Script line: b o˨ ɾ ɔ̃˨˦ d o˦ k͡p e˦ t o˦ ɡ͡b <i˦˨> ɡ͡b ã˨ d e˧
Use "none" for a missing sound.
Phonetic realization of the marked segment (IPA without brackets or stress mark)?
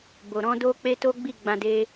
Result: i˦˨